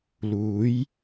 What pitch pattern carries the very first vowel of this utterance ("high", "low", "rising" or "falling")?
rising